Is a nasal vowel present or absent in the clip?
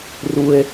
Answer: absent